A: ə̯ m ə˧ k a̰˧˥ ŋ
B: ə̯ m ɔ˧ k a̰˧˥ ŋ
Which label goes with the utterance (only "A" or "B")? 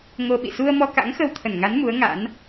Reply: B